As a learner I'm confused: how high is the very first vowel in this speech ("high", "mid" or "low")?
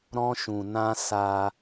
mid